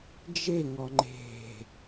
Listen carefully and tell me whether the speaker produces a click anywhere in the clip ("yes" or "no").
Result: yes